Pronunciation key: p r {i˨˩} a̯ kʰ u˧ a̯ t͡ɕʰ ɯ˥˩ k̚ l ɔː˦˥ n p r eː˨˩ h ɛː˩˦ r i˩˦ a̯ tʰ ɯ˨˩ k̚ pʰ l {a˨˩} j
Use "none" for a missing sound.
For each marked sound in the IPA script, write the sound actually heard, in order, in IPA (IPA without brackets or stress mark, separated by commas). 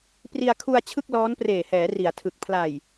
i˧, a˨˩